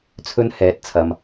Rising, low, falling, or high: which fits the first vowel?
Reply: high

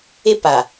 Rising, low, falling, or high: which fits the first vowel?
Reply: high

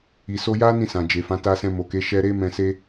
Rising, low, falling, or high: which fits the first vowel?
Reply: low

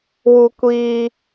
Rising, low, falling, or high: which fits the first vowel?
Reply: high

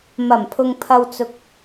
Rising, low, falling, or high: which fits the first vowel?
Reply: low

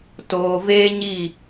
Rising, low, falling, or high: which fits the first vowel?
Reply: low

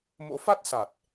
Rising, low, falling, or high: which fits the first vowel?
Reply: rising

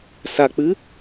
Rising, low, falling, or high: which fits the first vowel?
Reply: low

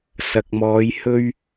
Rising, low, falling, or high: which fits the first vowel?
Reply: low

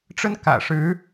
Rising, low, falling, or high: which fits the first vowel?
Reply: high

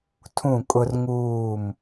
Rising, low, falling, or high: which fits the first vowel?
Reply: falling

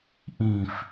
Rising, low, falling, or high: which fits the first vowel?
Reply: low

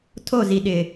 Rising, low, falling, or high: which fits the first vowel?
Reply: falling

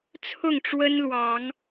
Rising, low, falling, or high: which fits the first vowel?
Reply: falling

